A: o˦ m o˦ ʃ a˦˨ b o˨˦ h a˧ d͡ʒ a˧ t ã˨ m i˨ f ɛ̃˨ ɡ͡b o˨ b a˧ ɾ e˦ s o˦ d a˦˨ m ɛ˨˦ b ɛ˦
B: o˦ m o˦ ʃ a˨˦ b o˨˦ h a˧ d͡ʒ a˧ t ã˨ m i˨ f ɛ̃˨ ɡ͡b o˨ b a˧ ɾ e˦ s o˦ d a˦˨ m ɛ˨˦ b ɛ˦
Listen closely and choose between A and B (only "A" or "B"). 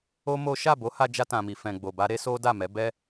A